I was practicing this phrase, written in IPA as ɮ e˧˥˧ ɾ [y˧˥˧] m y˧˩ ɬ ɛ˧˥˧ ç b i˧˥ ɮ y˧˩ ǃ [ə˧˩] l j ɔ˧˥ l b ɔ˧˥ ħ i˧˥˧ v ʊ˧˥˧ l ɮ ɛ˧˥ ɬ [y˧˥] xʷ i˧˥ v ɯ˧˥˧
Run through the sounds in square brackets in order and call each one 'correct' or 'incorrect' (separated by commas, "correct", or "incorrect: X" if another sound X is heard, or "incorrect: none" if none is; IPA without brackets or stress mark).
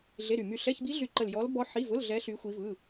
incorrect: y˧˩, correct, correct